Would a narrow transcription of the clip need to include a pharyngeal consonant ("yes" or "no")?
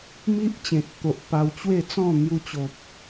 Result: no